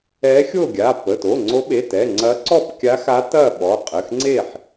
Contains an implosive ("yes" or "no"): yes